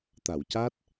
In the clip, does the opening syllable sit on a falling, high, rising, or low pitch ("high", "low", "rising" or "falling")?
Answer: low